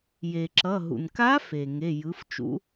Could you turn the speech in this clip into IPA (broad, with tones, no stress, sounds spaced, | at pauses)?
j e˩ ǁ ʌ˩˧˩ ɦ ṵ˩ n k a˧˥ f e˩ ŋ e˩˧˩ j ɯ˩˥ f t͡ʃ ṵ˧˥